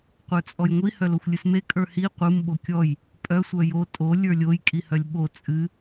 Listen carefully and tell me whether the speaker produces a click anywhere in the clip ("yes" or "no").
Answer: no